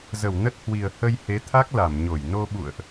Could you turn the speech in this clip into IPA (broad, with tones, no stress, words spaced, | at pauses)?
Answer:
zə˧˩wnə˦˥t̚hwi˨˩ə̯ hə˧jhe˨˦ t̪ʰa˦˥k̚la˧˩mɲo˧˩j no˧ɓṵ˧˨ə̯ʔ